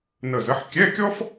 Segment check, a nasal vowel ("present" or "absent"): absent